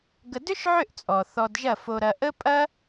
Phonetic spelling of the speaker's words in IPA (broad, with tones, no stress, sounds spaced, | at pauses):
ɡ ə˧ d ʏ˦ ʃ ʕ ʏ˦˨ ʔ t͡sʼ ɔ˨ θ ɔ˧ d ʒ ɐ˦˨ f o˧ ɾ ɐ˧ ʔ ə˦ pʼ ɐ˦